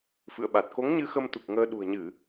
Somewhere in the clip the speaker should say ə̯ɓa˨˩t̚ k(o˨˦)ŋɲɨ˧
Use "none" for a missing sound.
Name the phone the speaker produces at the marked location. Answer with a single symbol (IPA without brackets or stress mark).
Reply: o˨˦